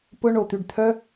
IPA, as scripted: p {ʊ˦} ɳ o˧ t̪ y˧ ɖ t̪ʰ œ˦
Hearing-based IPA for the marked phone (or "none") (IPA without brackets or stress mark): ʊ˦